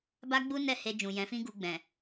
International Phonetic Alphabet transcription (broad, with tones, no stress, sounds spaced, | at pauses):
b a˦ ɡ͡b u˦ n ɛ˦˨ h e˧ d͡ʒ ũ˨ j ɛ̃˨˦ f ĩ˦ ɡ u˧ ɡ͡b ɛ̃˨